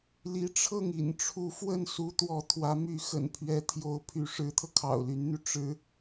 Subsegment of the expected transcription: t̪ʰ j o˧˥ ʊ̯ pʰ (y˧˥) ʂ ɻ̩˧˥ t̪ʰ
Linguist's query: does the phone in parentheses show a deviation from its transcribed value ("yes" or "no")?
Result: no